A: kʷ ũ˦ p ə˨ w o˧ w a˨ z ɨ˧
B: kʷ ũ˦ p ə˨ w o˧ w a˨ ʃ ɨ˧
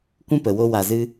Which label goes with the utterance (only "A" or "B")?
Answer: A